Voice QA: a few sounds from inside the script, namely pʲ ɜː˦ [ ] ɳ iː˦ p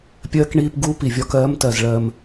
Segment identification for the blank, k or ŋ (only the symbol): k